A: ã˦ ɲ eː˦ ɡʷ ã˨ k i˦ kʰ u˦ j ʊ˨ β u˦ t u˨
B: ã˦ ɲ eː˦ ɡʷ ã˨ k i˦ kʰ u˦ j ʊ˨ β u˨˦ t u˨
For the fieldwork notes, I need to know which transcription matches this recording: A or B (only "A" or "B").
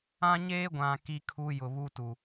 A